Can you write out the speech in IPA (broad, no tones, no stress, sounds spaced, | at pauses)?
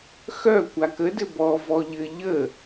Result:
x œ kʷ a k ə d ɘ b ɔ v ɔ ʎ ɘ ʎ ə